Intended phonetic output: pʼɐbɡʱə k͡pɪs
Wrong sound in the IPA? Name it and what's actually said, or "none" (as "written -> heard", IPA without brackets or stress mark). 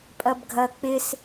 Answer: ə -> ɐ